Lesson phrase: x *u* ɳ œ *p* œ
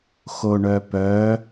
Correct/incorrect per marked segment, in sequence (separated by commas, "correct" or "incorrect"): incorrect, correct